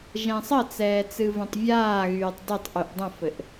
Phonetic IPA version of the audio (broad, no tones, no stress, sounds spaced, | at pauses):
ʒ ɛ̃ sˤ ə t͡s ɛː t͡s ɨ v ɛ̃ tˤ vʲ aː ɣ yː tˤ d ɨ tˤ ʔ y ʔ dˤ ə̃ f ɘ ʔ